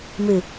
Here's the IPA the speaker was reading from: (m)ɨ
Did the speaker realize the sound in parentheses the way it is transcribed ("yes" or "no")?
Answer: yes